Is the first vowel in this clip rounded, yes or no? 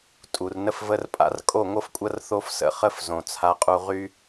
yes